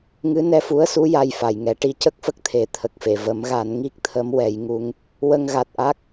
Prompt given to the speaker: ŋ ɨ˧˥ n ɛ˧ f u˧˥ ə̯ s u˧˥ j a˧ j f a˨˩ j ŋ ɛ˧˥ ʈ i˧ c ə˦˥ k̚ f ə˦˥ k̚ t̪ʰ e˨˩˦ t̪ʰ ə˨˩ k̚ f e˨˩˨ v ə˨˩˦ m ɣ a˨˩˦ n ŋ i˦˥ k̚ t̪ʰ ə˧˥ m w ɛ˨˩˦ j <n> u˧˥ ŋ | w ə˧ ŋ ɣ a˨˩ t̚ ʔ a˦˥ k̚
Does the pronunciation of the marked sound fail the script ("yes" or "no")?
yes